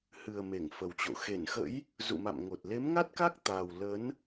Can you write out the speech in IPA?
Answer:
hɨ˨˩ə̯ me˧˩ŋfə˨˩wt͡ɕo̰˧˨ xe˧˩nxə̰˧˥j | zṵ˧˨ma̰˧˨mŋo˨˩t̚ le˨˦mŋa˦˥t̚ka˦˥k̚t̪aː˨˩w lə˨˦n

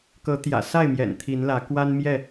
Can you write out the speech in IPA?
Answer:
kɤ˨˦t̪jä̰˨˩sa˥˨ɪ̯mjɛ̰˨˩n t̪ʰi˨˦nlä˨˦ kwa˦nmjɛ˥˨

